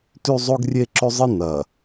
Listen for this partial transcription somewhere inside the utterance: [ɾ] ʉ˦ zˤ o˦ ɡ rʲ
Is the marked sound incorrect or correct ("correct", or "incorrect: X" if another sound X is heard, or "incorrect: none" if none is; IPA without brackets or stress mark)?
incorrect: t